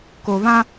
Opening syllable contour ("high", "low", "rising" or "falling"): low